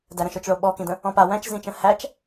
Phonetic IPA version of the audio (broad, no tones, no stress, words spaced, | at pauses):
dæɾə̃ʃot͡ʃɭo ɓɔkĩdə̃ | ɔ̃pa wæ̃t͡ʃzĩt͡ʃə̃ hæt͡ʃ